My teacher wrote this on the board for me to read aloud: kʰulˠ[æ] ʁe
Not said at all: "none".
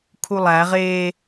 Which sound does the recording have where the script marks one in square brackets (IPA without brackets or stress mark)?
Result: æ